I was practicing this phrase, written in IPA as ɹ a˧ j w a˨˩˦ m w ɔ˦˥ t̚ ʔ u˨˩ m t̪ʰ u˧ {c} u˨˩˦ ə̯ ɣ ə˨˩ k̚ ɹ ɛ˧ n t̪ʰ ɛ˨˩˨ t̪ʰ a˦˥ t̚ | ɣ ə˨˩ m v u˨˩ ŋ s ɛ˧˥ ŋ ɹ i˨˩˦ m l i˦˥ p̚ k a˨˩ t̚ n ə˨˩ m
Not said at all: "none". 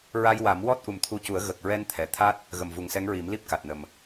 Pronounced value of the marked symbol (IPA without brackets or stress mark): c